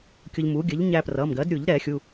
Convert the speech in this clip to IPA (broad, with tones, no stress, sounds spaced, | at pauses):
kʲ ʊ˧ ʎ m u˩˥ ɡʲ ə˩˥ ʎ ɲ æ˧ p r ʌ˩˧˩ m ɡ ɜ˩˥ d ɾʲ u˨˩˦ ʎ ɾ ɛ˨˩˦ xʲ u˩˧˩